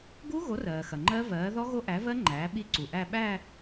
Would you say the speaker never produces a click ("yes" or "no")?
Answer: no